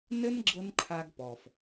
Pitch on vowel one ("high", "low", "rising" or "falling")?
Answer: high